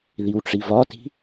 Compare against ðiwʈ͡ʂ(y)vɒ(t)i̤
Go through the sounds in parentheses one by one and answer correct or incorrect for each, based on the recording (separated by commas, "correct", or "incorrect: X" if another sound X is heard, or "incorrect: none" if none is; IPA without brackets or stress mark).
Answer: incorrect: i, correct